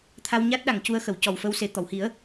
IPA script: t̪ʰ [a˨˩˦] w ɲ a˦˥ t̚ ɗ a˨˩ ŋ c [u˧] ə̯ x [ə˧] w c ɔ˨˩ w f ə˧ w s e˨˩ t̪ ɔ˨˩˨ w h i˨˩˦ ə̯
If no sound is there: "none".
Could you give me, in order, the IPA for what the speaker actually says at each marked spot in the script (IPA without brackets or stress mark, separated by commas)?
a˧, u˧, ə˨˩˨